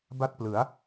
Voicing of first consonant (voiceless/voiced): voiced